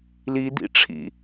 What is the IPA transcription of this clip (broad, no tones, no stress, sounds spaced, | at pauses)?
l i d̪ ḭ ʈ͡ʂʰ ḭ